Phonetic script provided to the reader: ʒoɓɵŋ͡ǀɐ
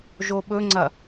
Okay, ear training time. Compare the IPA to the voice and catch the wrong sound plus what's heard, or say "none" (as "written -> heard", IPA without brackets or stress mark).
none